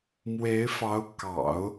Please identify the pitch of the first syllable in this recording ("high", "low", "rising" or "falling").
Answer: rising